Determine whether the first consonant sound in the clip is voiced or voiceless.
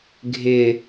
voiced